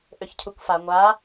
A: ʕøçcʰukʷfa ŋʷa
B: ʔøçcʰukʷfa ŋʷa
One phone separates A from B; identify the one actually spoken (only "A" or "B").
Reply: B